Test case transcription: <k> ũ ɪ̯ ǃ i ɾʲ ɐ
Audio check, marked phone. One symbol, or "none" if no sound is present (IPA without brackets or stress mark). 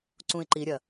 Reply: ǀ